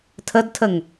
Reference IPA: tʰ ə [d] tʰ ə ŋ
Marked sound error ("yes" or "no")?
no